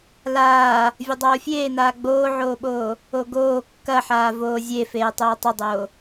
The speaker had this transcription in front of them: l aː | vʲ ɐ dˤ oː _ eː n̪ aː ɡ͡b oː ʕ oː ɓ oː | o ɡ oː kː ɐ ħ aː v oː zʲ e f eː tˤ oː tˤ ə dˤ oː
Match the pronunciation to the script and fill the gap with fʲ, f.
fʲ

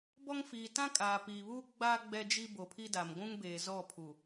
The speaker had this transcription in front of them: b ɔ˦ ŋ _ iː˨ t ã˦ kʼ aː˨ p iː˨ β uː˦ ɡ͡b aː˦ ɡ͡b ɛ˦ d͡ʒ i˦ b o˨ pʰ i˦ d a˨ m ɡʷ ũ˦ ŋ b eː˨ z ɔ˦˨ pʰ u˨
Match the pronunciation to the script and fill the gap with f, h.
f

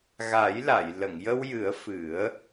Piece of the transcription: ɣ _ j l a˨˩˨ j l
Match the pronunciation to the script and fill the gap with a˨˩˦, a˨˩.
a˨˩˦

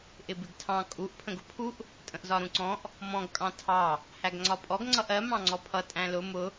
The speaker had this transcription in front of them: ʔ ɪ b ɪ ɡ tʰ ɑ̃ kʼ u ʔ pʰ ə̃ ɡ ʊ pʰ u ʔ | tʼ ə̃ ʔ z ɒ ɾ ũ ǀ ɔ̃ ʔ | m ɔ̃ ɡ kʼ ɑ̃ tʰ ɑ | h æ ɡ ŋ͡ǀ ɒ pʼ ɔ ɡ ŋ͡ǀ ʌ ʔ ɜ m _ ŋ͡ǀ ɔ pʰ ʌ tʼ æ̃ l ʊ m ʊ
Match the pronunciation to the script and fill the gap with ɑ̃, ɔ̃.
ɑ̃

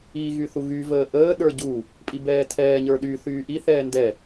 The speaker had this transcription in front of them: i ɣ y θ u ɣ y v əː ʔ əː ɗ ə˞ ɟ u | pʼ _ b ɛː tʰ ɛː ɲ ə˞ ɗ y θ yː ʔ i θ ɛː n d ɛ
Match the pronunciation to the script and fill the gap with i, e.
i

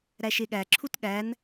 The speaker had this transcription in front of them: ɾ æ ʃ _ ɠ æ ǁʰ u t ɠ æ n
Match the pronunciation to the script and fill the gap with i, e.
e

